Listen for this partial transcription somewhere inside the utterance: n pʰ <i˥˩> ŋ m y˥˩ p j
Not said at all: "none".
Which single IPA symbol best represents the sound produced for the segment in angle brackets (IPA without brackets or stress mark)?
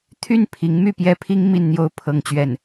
i˧˥